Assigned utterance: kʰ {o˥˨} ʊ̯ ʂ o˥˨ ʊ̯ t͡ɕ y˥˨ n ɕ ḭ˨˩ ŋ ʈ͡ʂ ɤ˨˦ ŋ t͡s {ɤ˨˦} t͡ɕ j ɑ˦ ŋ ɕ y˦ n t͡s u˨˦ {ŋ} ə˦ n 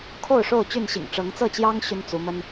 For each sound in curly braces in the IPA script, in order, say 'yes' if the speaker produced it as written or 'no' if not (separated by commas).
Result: yes, no, no